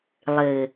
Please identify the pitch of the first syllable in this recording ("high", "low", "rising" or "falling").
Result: low